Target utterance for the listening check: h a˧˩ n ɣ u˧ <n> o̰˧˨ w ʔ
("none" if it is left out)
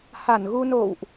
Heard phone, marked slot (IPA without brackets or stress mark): n